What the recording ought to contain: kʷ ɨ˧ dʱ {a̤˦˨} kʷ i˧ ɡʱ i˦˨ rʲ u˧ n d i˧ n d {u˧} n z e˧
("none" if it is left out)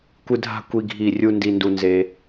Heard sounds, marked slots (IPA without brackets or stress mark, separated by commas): a̤˦˨, u˧